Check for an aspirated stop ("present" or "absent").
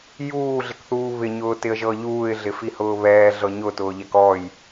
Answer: absent